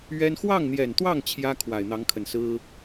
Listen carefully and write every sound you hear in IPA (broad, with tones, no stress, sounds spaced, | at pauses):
ɥ ɛ˥ n x w ɑ˥˩ ŋ n̪ j ɛ˨˩ n t̪ w ɑ˥˩ ŋ t͡ɕʰ j ä˥ kʰ w a˨˩ ɪ̯ n̪ ɑ˧˥ ŋ kʰ ə˨˩ n s ɹ̩˥